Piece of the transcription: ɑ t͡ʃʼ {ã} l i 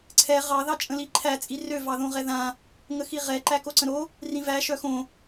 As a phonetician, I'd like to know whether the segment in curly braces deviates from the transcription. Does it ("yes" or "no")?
yes